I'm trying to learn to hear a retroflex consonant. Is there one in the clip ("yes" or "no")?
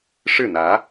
yes